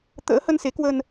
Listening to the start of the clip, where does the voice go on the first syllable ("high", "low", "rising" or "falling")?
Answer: rising